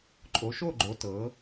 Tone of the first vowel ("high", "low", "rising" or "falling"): rising